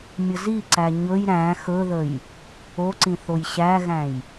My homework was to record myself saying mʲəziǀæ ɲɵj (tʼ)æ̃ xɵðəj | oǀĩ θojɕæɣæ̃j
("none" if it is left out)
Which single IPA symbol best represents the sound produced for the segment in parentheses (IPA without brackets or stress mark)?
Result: ɾ